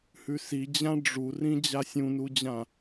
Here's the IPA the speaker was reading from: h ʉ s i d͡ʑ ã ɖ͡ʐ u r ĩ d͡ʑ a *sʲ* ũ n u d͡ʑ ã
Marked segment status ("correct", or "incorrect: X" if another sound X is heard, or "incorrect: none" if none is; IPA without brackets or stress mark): correct